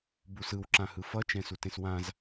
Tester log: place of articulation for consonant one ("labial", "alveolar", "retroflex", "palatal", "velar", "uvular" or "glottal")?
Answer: labial